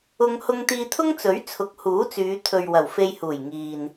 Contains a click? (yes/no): no